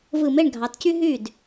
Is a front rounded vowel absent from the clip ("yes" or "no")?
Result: no